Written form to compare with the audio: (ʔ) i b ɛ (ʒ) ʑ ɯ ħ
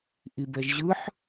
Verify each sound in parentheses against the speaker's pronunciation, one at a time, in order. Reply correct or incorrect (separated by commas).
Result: correct, correct